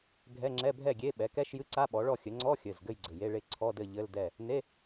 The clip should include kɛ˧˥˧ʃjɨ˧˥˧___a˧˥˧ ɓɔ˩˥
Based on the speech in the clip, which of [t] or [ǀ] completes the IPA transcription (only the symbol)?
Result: ǀ